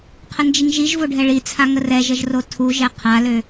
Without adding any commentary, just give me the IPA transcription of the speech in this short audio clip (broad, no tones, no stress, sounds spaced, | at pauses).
qʰ ə n d͡ʒ i ŋ ʒ i ʒ v o ɖʱ ɛ ɭ i t͡sʰ a ŋ ə r ɛ ʒ ə ʒ r o tʰ u ʒ ɛ qʰ a l ø